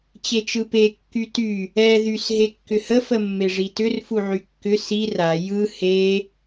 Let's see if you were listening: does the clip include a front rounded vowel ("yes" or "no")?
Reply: yes